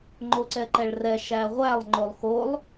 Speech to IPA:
ŋ͡ǃ o ǀ ɛ ǃ ɛ ɭ r ɛ ʃ æ ʁʷ æ lˠ ŋ͡ǃ o lˠ x o lˠ

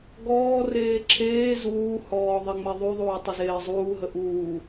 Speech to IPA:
ɡ ɔː r eː ǁʰ eː z uː h ɔː ðˤ e ŋ͡m e ðˤ u ðˤ uː tˤ ə z eː zˤ uː ɦ ə ʔ uː

